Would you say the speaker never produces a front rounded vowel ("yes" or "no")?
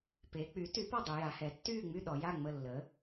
no